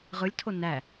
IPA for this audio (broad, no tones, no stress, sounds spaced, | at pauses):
ʁ ɯ lʲ tʰ o n æ